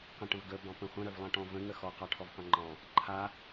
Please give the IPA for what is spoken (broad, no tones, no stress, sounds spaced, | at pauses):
q ə̃ ʈ ə̃ v ɡ ə b ɑ̃ p ə̃ χʷ ə̃ ɾ œ v lˠ ɑ̃ ʈ ɔ̃ v ə̃ ŋ ə x ɔ q ɑ ʈʰ ɔ v q œ̃ ŋ͡ǃ ɑ̃ | ǃʰ a